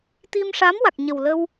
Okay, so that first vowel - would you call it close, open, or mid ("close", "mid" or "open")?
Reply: close